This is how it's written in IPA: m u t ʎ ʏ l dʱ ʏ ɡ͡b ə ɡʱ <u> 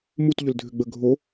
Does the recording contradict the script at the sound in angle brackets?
yes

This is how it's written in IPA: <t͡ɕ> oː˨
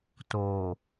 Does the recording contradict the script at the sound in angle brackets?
yes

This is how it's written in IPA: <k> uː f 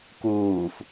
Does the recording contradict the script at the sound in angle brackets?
no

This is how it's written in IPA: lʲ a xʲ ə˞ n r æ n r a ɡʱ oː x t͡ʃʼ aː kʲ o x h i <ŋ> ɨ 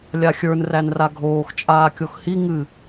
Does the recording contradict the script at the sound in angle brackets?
no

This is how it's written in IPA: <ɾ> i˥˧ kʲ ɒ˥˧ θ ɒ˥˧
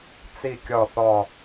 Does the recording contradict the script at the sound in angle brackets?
yes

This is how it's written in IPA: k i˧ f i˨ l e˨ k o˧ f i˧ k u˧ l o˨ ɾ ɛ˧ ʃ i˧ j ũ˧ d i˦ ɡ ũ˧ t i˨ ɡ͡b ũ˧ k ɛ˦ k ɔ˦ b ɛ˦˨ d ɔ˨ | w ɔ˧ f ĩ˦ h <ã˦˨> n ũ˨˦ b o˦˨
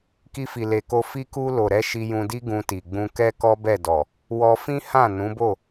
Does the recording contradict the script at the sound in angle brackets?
no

